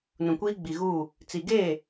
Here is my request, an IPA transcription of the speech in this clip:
nũ˨kʷiː˦ ɡ͡bi˨ɣuː˦˨ | t͡si˨ɡeː˦˨

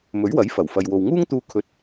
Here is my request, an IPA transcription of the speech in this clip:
mɵ˨˥ɥwɐ˨˥jfɐ˨˩w fɐ˨jwo˨wŋuː˥ŋt̪uː˧ kʰɵ˨˥t̚

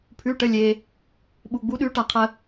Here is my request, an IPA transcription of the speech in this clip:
pʰʉ˩˧˩ʈə˩˧˩ lʲe˩ | ɓu˩ɡ͡bu˩˥ ɗʉ˩˥ʈa˩qʰə˩

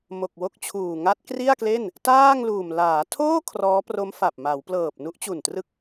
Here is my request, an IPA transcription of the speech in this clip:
mo˨˩k̚wo˥˩k̚t͡ɕʰuː˨˩ ŋa˦˥t̚kri˥˩a̯kle˥˩n | taː˥˩ŋluː˨˩m laː˩˦tʰoː˥˩ kʰrɔː˦˥pro˦˥mfa˨˩p̚ ma˩˦wplɤː˨˩p̚ nu˦˥ʔt͡ɕu˨˩ntrɯ˦˥k̚

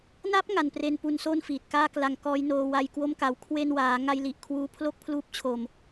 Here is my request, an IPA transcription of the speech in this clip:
na˦˥p̚ ŋa˧npre˧n pu˧nso˥˩n fiː˨˩t̚kaː˥˩kla˧ŋkɔː˦˥j noː˧wa˧jkwo˥˩mka˨˩w kʰwe˧nwaː˩˦ŋa˧j li˨˩ʔkʰwuː˦˥pʰlo˥˩k̚pʰluː˦˥p̚ t͡ɕʰo˨˩m

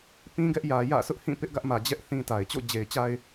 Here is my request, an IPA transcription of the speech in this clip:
pĩ˦ɡɛ˦ʔjä˨jä̰˦˨ sʰʊ˦ʔhĩ˦˨ pɪ˦ʔɡä˦ʔmä˨d͡ʑɛ˦ʔ θĩ˦ta˨ɪ̯ t͡ɕo̰˦˨d͡ʑe˨ɪ̯t͡ɕa˦ɪ̯

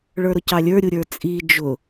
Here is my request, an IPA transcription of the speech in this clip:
ɭə˞ɾʊcɑlʲə˞ ɾʲuɾʲə˞t͡sʼi d͡ʒʊ

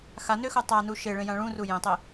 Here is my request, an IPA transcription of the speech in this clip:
xanøxo tˤanu ʃeɭẽjã ɭũru jẽtˤe

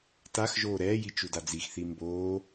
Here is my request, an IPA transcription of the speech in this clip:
taxʒoː ɾɛːji t͡ʃudad͡zixθi mboː

